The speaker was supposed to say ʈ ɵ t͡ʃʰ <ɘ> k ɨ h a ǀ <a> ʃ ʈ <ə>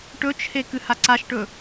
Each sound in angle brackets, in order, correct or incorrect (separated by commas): incorrect, correct, incorrect